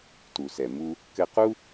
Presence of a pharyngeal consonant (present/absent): absent